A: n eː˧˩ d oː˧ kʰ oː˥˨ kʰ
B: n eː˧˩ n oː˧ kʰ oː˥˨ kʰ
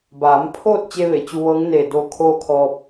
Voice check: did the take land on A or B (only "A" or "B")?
A